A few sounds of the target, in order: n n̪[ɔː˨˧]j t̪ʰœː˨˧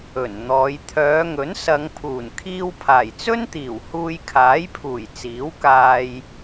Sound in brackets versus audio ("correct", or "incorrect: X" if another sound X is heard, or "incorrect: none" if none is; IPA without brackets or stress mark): correct